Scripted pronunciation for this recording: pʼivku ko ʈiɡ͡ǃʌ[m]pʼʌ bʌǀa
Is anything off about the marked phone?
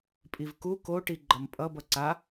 no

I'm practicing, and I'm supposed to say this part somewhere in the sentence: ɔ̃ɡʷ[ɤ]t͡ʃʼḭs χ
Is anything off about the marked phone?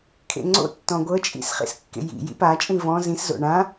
no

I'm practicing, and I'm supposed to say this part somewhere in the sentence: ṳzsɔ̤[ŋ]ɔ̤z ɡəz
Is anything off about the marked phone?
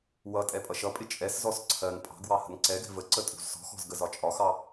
yes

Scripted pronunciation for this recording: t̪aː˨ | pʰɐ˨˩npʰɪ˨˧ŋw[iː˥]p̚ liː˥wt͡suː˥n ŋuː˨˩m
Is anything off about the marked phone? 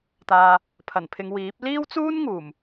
yes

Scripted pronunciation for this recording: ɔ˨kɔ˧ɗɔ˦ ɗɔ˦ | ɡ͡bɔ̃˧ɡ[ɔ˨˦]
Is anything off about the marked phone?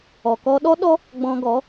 no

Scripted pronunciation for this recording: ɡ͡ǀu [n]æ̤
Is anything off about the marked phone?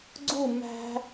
yes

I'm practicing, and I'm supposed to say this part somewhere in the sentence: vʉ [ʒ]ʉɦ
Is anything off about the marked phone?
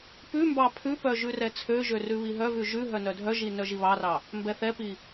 no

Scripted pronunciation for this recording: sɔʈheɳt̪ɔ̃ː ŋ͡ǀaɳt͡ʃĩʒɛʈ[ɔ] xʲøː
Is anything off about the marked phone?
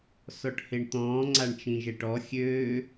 no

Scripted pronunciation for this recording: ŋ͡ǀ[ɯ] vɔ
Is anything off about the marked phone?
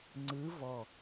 no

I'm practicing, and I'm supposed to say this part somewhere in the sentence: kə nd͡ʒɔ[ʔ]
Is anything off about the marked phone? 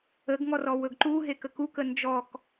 yes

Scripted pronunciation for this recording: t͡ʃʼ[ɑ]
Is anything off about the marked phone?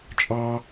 no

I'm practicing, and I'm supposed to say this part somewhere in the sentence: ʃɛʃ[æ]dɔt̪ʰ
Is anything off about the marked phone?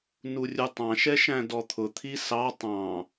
yes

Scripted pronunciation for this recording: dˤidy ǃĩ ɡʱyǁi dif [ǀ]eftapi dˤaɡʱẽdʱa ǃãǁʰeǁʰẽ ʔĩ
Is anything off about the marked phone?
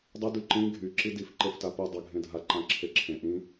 yes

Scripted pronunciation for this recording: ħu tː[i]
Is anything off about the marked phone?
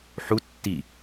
no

